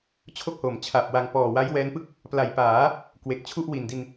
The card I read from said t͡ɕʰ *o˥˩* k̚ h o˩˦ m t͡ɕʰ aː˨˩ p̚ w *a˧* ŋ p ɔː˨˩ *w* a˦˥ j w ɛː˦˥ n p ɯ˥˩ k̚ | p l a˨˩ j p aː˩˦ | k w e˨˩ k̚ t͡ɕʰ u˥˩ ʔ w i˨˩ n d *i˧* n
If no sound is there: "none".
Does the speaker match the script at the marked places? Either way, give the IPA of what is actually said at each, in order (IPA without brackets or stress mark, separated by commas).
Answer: o˥˩, a˧, w, i˧